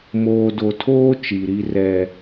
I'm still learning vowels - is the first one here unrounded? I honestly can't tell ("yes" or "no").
no